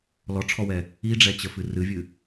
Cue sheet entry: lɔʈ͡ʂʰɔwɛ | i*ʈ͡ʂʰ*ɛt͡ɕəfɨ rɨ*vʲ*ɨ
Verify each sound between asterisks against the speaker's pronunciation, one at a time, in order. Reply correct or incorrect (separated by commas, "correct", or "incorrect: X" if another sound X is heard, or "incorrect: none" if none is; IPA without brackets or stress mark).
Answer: incorrect: ɖ͡ʐ, correct